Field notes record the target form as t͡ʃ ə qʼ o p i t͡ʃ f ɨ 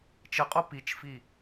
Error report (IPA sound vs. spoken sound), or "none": ɨ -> i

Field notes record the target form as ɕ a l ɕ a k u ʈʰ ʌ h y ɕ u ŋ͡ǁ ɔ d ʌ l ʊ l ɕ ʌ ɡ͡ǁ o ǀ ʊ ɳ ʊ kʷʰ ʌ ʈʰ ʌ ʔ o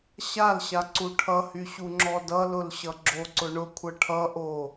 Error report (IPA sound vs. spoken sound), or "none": k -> ǀ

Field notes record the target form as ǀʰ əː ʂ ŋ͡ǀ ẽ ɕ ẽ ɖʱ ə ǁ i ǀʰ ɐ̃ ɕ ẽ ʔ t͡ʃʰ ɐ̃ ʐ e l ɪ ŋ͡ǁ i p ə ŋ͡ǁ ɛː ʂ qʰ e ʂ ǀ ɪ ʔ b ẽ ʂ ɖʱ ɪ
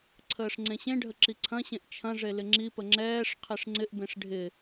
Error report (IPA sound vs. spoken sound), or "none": ǀ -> ŋ͡ǀ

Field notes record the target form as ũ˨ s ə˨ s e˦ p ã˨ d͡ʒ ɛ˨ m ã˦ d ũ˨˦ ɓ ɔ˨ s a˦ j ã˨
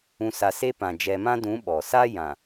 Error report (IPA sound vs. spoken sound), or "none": ə˨ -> a˨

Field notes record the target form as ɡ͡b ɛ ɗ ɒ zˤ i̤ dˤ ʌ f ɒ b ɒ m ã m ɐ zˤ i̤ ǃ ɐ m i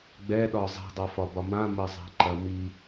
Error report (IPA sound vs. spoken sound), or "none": none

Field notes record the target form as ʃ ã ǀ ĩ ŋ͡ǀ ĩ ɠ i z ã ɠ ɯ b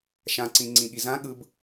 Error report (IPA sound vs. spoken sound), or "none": none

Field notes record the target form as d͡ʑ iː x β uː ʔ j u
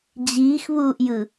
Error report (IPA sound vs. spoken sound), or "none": u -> ɯ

